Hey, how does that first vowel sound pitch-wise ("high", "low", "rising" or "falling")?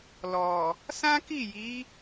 low